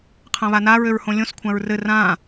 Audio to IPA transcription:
qʰ ã β a n a ɹ ø ɹ h õ lʲ õ s kʷʰ ã ɹ r ɘ r ã

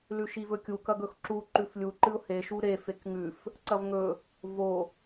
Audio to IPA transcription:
l ʉ ʃ i v ɵ kʲ u k ɐ ɡ ɵ x ǁ u ǃ ʉ f lʲ u ǃ ɨ ʊ̯ h e ʃ u ɾ e f e k ŋ ʉ f | ǀ ɐ v ŋ ɵ | v o

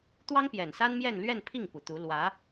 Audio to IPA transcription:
t̪ w ɑ˥ ŋ p j ɛ˨˩ n s a˥ n m j ɛ˥˧ n l ɥ ɛ˥˧ n pʰ i˥˩ ŋ p u˨˩ t̪ u˧˥ l w ä˧˥

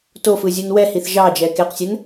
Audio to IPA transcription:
t o f ɯ zʲ u n w ɛ h i θ ʒ ɑ d͡ʒ ɛ k e q sʲ ɛ n

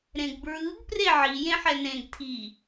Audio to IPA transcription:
ɾ ẽ ɡ b ɹ ɯ ɡ p r e ʕ i j ẽ ħ ɛ n ẽ ɡ tʰ i

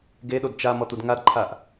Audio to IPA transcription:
ɡ e ɗ o d t͡ʃ a m ɔ t̪ u d ŋ a d ǃʰ a ʔ

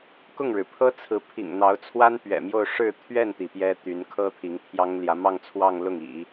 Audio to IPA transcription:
k ʊ˥˩ ŋ ɻ ɻ̩˩ pʰ ɤ˥ t͡sʰ ɹ̩˧˥ pʰ ḭ˨˩ ŋ n̪ ɑ˧˥ ʊ̯ t͡sʰ w a˥ n p ɥ ɛ̰˨˩ m j o˥˧ ʊ̯ ʂ ɻ̩˥˧ t̪ʰ ɥ ɛ˥˩ n t̪ i˩ p j ɛ˥ t̪ y˧˥ n kʰ ɤ˥ t̪ʰ i˧˥ ŋ t̪ʰ j ɑ˥ ŋ l j ä˧˥ m ɑ˥˧ ŋ t͡sʰ w ɑ˥˧ ŋ l ʊ˥˩ ŋ ḭ˨˩˦

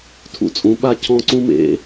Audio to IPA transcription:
tʰ ṵ˥ t͡sʼ ũ˨˥ ɓ a˥ cʰ ɔ̃˥ ǀ ũ˥ m ḛ˨˥

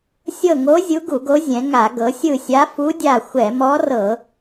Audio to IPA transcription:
sʲ ɤ˦˨ ŋ o˧˥ zʲ u˧˥ ɡ u˧˩˧ ɡ o˧˥ zʲ ɛ̃˩˧ ŋ a˧˩˧ ɡ ɤ˩˧ sʲ ɯ˦˨ sʲ a˧˥ f u˧˥ dʲ a˦˨ xʷ ɛ˧˩˧ m ɔ˧˥ r ɤ˧˩˧

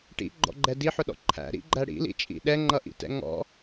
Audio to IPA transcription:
ʈ ḭ ɡ͡ǃ ɔ̰ ɡ͡ǃ ɛ d i ħ ʊ ɗ ɔ̰ ǃʰ æ̰ ɾ ḭ ɡ͡ǃ æ ɽ ḭ l ḭ t͡ʃʼ ḭ ɗ ɛ ŋ͡ǃ ʌ ʔ ḭ t ɛ̰ ŋ ɔ̰

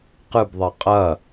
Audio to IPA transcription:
q ɨ b ðˤ ɛ qʼ ɐ

